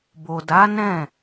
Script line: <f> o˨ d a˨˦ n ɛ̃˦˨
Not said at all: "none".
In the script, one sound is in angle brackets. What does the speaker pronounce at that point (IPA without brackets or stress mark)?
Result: b